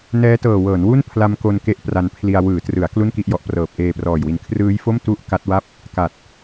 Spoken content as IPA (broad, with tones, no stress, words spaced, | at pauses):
nɛː˦˥tɤː˨˩wɤː˩˦nwu˥˩n pʰla˧mko˧n ke˦˥ʔpra˧npʰli˧a̯ wɯː˩˦trɯ˩˦a̯ klu˥˩nki˥˩ʔjɔ˨˩ʔprɤː˨˩p̚ ʔeː˧prɔː˨˩jwi˨˩n kʰrɯː˦˥jfo˥˩m tu˥˩ʔ ka˦˥t̚wa˥˩p̚ | ka˨˩t̚